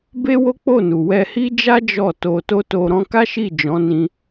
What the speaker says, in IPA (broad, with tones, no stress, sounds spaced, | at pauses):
b e˦ w o˦ k͡p o˦˨ n u˨ w ɛ˧ h i˦ d͡ʒ a˦ d͡ʒ ɔ˦˨ t o˧ t o˦ t o˧ ɾ ɔ̃˦ k a˦ ʃ i˦˨ d͡ʒ ɔ̃˨˦ n ĩ˧